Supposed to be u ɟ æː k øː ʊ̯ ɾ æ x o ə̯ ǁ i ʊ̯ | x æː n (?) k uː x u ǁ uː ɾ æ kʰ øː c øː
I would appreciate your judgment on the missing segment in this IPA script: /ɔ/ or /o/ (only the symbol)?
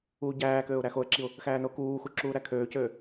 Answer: o